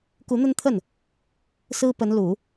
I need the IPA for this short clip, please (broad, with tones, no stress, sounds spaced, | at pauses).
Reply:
k u˧˥ n̪ ə˥ n t̪ʰ ə˥˩ n | s ɹ̩˥ p ə˧˥ n l u˨˩˦